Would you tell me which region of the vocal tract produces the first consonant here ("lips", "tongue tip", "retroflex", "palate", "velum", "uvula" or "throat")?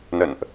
tongue tip